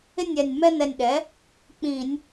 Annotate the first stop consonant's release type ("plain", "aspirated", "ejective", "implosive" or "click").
implosive